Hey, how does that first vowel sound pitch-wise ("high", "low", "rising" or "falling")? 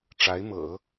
rising